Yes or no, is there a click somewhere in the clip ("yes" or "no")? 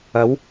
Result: no